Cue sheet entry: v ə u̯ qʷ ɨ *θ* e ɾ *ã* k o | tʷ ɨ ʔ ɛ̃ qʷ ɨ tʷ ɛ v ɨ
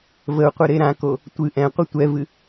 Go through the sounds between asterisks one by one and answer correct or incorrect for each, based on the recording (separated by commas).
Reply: incorrect, correct